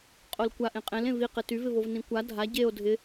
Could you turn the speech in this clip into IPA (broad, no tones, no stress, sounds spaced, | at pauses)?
qʼ o l kʷ a ʔ ẽ qʼ ẽ l ẽ v i q ɪ t y v ɪ v o v n ĩ kʷ a dʱ a ɟ e o̯ dʱ ɪ